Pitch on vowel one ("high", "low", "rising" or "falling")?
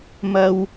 low